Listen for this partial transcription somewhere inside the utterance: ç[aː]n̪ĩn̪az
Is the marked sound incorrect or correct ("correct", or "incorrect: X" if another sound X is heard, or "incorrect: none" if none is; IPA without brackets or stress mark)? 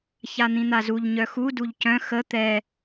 incorrect: a